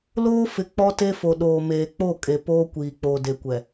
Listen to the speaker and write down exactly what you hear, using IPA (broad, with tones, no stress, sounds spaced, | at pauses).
l oː˦ f ɪ˨ k͡p ɔ˦ t e˦ f o˨ ɗ oː˨ m eː˨ k͡p o˦˨ kʼ e˨ p oː˦ kʷ iː˨ k͡p oː˨ d e˨ kʷ ɛ˨